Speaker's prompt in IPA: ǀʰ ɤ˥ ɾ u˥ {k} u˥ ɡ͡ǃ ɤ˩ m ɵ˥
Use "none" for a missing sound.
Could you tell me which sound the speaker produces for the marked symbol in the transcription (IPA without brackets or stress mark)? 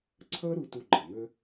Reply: t